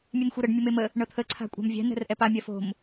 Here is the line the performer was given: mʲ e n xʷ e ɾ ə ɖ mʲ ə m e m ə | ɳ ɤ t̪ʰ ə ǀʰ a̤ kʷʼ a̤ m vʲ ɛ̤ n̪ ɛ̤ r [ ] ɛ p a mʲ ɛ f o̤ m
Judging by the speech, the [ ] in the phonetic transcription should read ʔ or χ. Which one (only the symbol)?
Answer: ʔ